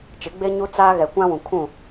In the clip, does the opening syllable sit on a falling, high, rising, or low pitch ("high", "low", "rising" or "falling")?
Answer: rising